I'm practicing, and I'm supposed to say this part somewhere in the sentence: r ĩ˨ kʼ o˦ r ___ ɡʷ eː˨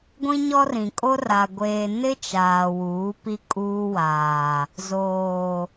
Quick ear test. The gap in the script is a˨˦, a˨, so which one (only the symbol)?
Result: a˨